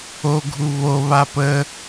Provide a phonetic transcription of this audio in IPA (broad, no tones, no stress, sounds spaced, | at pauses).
o ɡʱ u β o β a p ə